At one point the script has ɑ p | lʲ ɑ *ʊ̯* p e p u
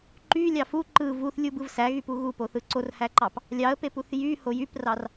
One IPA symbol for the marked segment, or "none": ə̯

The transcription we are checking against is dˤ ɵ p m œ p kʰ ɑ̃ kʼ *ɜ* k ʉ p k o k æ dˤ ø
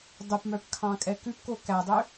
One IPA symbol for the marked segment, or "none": ɛ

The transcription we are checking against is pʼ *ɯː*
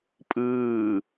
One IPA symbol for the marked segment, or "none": ɯː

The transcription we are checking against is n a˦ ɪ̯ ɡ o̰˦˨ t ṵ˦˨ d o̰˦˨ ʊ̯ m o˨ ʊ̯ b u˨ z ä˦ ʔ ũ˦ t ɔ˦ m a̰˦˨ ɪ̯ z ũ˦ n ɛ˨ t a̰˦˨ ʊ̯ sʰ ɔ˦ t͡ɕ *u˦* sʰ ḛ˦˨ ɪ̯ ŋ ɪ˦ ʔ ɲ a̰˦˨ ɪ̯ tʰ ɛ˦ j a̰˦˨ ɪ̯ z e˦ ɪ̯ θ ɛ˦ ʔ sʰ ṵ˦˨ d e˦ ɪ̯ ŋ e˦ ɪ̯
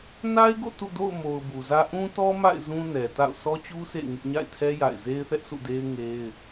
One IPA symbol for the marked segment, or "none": u˦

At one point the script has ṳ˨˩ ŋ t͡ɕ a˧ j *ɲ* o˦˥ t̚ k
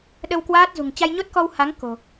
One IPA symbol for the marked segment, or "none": ɲ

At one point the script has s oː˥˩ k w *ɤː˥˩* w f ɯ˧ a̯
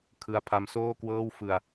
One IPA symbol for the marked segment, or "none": ɤː˥˩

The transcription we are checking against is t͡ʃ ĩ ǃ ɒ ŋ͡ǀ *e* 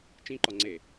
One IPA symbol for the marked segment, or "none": e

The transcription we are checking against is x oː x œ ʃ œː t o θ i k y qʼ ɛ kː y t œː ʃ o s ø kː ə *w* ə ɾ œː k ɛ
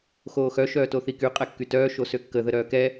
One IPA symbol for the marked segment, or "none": ð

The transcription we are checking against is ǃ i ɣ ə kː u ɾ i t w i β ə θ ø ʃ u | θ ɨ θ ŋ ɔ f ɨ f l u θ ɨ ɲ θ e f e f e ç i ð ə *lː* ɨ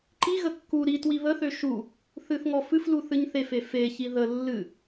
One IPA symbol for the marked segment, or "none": lː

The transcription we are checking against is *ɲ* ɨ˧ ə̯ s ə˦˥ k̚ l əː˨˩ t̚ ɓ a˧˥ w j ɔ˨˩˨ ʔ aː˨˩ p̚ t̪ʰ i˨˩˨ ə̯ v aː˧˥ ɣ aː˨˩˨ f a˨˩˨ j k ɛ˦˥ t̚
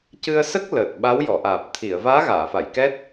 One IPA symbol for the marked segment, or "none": c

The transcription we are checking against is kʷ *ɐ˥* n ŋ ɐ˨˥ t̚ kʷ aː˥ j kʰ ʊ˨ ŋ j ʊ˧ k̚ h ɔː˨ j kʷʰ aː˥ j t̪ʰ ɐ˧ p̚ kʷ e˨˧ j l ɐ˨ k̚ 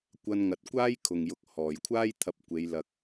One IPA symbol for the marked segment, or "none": ɐ˧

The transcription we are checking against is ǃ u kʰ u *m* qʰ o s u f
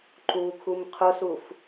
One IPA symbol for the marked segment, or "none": m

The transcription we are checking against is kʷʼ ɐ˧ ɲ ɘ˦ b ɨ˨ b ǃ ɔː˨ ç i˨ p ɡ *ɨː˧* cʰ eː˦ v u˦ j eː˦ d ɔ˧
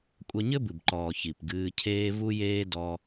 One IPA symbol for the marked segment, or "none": ɨː˧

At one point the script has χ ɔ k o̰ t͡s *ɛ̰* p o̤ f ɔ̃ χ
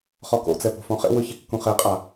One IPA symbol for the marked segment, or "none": ɛ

